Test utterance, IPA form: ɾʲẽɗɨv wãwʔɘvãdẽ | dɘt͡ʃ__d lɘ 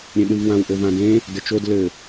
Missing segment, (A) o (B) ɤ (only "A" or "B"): A